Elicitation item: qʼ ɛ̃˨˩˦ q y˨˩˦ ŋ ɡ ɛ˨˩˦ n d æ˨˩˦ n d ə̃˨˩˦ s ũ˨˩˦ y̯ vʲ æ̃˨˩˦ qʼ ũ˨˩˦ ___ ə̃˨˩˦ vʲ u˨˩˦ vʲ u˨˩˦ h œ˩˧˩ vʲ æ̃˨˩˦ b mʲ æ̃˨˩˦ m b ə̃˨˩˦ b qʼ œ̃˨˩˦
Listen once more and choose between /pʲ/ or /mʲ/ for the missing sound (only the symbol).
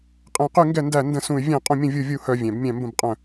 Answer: mʲ